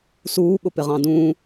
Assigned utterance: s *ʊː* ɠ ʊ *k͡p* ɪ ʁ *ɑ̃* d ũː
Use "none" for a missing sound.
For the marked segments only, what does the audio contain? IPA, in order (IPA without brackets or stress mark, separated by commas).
uː, p, ɑ̃